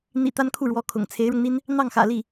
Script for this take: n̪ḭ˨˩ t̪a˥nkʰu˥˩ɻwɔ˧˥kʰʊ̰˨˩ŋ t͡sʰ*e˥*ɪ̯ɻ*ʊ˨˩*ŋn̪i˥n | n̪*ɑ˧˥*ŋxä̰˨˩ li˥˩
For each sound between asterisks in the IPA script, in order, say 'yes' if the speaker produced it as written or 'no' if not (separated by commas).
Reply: no, no, no